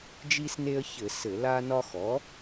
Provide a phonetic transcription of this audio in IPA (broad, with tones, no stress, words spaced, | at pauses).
d͡ʒi˦sne˦ə̯çɘ˧˩˧ sɘ˧˩˧la˦nɒ˦ xɔ˩˥